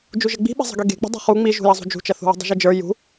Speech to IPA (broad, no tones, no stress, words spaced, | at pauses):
d͡ʒuʒɘɡ͡bi̤ɓe̤ zˤə̤ɡeɡe̤k͡pə̤ dˤṳχu ŋ͡miʒṳjɐzˤṳ d͡ʒṳt͡ʃɐθṳwə̤ dˤṳʒɘd͡ʒə˞ jṳ